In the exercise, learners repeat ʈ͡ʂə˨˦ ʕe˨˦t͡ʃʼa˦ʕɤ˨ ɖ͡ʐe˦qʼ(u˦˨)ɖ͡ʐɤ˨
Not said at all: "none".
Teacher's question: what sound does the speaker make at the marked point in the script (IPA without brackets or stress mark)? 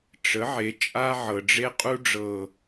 u˦